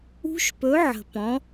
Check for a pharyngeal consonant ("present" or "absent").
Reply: present